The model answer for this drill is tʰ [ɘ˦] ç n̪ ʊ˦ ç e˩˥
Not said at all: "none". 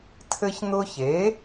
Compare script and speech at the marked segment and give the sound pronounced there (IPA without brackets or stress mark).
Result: ɘ˦